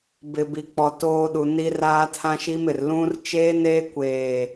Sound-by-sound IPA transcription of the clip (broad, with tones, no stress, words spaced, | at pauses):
bɪ˨bi˨k͡pɔ˨ toː˦ɗu˨ni˦ raː˦tʰã˦ʃi˦mɪ˨r lũ˦r t͡ʃeː˦neː˦ kʷeː˦˨